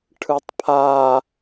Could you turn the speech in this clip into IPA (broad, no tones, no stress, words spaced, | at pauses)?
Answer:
ʈʰɯtˤpʰa